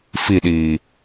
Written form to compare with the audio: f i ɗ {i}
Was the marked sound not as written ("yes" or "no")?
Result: yes